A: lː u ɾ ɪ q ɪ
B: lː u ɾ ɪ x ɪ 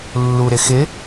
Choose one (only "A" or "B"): B